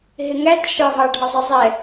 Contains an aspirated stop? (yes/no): no